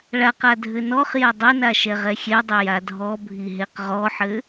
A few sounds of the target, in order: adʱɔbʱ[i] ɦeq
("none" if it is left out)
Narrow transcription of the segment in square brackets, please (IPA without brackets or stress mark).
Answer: i